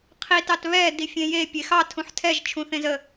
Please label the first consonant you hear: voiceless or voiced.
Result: voiceless